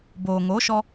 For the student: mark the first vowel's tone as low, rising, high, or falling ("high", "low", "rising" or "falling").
low